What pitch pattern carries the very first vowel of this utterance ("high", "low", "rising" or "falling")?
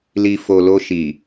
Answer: low